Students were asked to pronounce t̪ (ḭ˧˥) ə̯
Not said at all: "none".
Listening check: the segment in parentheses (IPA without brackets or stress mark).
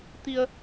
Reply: i˧